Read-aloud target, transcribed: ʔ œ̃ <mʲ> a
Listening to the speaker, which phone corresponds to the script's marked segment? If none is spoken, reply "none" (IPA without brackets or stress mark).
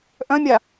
mʲ